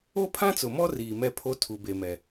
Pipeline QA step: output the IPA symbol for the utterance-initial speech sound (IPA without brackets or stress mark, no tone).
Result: o